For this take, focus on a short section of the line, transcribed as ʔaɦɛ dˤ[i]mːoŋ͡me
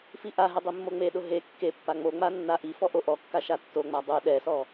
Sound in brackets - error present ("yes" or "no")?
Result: no